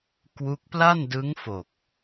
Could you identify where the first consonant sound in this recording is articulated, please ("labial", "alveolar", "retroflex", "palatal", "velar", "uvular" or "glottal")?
velar